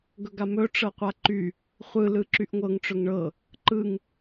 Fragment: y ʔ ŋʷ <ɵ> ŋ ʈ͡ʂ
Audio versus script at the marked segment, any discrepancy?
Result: yes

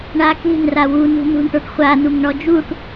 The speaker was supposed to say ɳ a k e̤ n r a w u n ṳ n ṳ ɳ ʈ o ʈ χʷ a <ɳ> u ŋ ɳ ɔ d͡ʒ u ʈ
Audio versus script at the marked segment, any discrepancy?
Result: yes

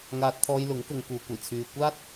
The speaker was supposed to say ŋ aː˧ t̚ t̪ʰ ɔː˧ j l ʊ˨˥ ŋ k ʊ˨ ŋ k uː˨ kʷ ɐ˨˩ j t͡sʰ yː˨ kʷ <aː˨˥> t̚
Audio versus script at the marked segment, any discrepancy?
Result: yes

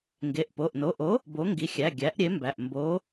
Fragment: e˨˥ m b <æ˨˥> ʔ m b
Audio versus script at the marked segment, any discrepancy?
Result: yes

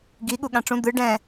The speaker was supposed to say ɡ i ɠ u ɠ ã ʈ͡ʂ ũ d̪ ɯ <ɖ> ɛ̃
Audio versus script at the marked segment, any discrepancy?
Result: no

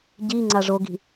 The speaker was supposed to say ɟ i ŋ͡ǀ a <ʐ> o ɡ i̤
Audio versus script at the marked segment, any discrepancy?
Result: no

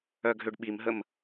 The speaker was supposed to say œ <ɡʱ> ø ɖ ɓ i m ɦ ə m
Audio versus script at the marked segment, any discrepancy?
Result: no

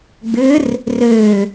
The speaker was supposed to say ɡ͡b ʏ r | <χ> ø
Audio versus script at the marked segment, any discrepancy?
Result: yes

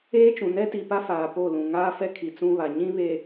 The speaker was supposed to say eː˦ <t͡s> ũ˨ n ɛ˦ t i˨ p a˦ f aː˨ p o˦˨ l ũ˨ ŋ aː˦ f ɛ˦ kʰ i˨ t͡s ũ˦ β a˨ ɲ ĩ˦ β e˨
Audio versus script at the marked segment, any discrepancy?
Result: yes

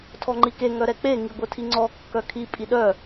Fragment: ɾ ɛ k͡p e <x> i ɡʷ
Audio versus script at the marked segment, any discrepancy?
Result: yes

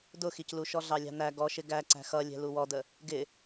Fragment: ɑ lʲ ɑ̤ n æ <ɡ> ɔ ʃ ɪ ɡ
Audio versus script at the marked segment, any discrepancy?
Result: no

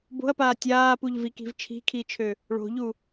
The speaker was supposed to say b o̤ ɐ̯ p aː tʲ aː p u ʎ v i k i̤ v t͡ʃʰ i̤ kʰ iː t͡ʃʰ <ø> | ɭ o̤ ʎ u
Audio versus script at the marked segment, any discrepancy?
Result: no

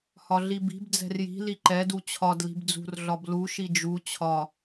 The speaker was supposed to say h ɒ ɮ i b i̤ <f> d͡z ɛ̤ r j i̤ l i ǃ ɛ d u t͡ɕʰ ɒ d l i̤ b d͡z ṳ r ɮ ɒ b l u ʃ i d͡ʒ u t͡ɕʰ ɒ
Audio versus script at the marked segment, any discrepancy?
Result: yes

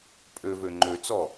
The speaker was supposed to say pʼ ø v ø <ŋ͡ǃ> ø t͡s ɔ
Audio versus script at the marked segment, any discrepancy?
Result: no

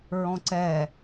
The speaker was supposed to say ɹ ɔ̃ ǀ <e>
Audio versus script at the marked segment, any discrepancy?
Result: yes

